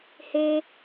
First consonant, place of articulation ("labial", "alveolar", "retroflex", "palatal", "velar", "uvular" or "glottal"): glottal